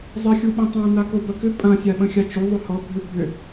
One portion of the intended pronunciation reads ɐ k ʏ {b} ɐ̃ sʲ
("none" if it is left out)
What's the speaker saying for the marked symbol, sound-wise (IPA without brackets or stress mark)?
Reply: pʼ